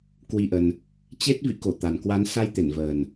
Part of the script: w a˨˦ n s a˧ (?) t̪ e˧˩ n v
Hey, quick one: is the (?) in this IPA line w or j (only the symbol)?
j